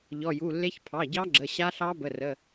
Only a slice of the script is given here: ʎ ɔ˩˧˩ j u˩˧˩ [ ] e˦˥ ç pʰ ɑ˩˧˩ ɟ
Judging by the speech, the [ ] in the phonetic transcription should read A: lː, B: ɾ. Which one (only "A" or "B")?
A